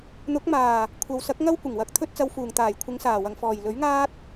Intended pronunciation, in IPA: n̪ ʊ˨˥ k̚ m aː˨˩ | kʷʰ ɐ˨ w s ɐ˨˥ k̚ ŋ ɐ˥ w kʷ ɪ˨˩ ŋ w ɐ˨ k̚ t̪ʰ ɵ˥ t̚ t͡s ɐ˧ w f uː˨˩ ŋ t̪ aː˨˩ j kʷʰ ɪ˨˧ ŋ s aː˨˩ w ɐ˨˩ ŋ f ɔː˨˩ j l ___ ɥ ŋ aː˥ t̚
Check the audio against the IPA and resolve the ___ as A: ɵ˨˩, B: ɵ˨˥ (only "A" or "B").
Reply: B